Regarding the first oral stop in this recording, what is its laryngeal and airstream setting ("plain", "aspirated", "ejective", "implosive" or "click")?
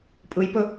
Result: ejective